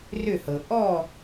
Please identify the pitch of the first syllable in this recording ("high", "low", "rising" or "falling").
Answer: falling